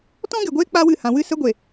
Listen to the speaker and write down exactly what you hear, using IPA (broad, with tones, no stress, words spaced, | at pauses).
tɔ̃˦ɡe˨ɡʷeː˦ k͡pa˦wɨ˦˨ hã˨ wɨ˦˨ sə˦ɡʷe˨